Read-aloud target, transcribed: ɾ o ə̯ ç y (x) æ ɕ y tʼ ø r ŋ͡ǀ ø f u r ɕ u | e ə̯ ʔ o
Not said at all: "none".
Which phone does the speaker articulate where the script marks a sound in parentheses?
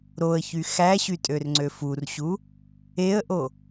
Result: x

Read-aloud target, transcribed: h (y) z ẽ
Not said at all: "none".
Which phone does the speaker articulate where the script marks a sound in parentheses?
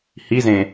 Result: i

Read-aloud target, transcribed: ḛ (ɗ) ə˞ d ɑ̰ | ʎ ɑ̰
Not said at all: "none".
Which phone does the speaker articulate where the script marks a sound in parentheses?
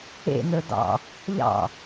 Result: n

